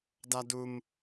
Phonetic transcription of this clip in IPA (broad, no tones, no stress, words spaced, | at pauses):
dadum